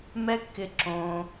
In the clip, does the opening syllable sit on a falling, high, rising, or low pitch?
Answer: high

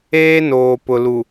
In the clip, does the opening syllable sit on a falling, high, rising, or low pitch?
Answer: high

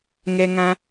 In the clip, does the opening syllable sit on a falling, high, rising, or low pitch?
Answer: high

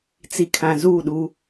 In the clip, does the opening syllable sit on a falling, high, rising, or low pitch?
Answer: low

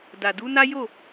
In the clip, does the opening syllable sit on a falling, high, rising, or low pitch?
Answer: low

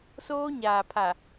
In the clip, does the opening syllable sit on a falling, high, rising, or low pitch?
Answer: high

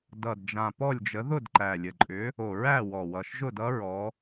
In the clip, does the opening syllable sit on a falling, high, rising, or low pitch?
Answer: low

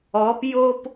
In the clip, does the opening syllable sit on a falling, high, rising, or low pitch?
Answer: rising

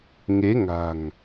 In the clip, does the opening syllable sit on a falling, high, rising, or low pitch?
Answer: rising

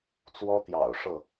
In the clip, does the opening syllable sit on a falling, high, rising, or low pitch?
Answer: high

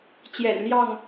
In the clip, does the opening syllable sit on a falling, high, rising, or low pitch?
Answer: low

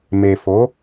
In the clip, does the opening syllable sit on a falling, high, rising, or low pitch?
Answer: low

